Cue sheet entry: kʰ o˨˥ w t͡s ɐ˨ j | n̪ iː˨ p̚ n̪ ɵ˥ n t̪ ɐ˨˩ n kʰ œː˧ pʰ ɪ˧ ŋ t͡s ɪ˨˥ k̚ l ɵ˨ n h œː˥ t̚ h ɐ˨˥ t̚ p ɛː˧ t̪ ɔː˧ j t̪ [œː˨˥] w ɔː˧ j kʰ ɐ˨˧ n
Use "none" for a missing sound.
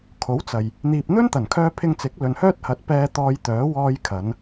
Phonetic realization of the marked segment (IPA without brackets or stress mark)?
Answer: œː˨˥